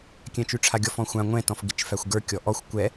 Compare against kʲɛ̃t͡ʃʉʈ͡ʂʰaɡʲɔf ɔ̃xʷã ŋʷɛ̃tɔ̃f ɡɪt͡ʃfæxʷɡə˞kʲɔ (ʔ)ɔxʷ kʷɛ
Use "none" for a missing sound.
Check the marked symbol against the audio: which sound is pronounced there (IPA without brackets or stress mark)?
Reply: ʔ